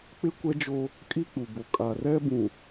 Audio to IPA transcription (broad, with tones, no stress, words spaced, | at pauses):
k͡pɪ˦kʷɛ˦d͡ʒo˦ | kʼi˦k͡pu˨ bo˨kʼa˨ rɛ˦bũ˨